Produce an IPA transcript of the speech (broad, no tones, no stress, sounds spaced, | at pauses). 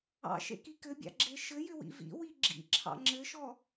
ɑ̰ ʃ ḛ k i k ɘ bʲ ɑ̰ ɡ͡ǁ e ʃ ɘ j ʏ w ḭ v ḭ w i ɡ͡ǁ ḭ ǁʰ ɑ̰ ŋ͡ǁ ɘ ʃ ɔ